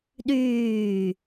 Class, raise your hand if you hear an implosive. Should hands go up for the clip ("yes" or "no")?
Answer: yes